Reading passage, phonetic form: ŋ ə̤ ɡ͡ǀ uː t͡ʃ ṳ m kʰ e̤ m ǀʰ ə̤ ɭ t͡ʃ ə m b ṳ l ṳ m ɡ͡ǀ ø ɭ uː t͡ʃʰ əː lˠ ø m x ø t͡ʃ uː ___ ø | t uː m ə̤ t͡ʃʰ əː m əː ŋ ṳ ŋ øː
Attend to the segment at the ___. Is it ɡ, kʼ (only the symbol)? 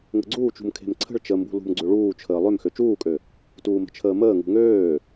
kʼ